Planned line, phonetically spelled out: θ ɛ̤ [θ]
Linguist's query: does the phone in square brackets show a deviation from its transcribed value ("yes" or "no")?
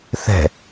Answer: yes